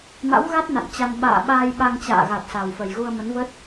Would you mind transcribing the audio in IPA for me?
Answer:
ma̰˧˥wɣa˦˥t̚ na̰˧˨nt͡ɕa˧n ɓa̰ː˧˨ ɓaː˧jɓa˧ŋt͡ɕa̰ː˧˨ɣa˨˩t̚ sa˨˩wfə˨˩jɣu˧ə̯ mə˨˦nvə˦˥t̚

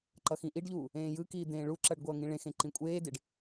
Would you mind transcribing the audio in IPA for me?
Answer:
ǃʌxĩʔiɖʎuː | ẽːjɯkiː d̪ẽːɭuǁʌɖ ɡʷʌːŋĩɭẽxẽ ǃĩkʷʼeːdeɖ

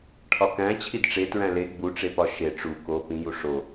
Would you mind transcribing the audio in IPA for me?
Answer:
ʈʰɒkæ̃ t͡ɕʰidʈ͡ʂe tɹæ̃le ɡ͡buʈ͡ʂepɒ ʃe ʈ͡ʂu ko pĩju ʂo

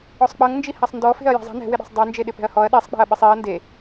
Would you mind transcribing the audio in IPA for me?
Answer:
ɔsˤk͡pʌŋ nd͡ʒihasˤndɔfe̤ɐ̯ jɛ̤zˤi̤ nɛ̤wɪɗe̤sˤ dˤɛ nd͡ʒeɗɪpɛ̤ɐ̯hɔɐ̯ ɗisˤ k͡pe̤ɐ̯ɓɪsˤiɐ̯ nde

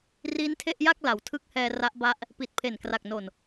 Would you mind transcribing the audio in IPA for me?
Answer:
ri˦˥n tʰe˥˩ʔja˥˩k̚ la˩˦wtʰɯ˦˥k̚hɛː˧ ra˦˥ʔba˦˥ʔ | pi˨˩t̚pʰe˨˩nkra˨˩k̚no˨˩n

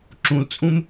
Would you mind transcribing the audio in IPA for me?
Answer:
ǁũlt͡sʼũm

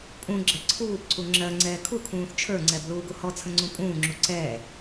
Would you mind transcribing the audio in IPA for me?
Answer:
pʼũ ɡ͡ǁɛǀʰuːbǀu ŋ͡ǁɜ ŋ͡ǀɛːkʰukʰũːθ t͡ʃʰə˞ŋ͡ǀɛb luːɡuhɔt͡sʰə̃ ŋ͡ǀũpʼũːŋ͡ǁu ǀɛː

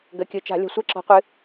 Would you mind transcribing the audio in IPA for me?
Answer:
ɡə˩˧˩kʲɯ˩˧˩t͡ʃa̤˧˩˧ lʲə̤˧˩˧sʷɛ˦ǁɔ̤˨˦qʷɨ˨˦

